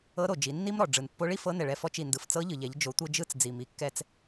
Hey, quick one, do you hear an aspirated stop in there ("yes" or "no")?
no